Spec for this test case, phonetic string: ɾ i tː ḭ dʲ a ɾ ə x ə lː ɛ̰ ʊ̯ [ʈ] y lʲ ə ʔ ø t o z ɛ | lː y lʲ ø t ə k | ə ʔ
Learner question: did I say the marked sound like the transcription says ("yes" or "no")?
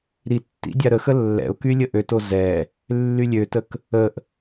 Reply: no